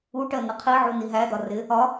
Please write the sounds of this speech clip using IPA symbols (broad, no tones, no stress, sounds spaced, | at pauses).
u ʈ ɜ n ə qʰ i ʕ u n i ɦ æ d̪ ɒ r ɪ | ɒ